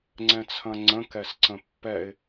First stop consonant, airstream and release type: click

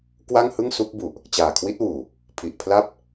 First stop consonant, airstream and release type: plain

